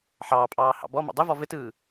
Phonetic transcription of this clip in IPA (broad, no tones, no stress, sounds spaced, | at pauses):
ħ ɑː pʼ ɑː h ɑ̰ b ɔ m ɑ̰ dˤ ɘ v ɔ v ɘ t ɯː